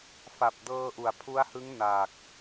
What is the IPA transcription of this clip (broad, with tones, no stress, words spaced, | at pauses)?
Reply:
fa˨˩p̚dɤː˧ ʔu˩˦a̯pʰu˦˥a̯hɯ˦˥ŋ naː˨˩k̚